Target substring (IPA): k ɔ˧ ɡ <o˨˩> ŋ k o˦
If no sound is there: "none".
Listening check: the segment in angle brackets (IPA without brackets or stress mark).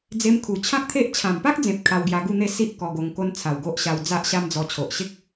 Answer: o˧